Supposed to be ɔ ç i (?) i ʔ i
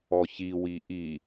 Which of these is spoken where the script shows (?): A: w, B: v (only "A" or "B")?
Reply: A